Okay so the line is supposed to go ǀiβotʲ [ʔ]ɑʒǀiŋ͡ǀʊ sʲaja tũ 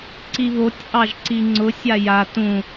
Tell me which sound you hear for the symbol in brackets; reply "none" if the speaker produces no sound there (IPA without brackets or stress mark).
ʔ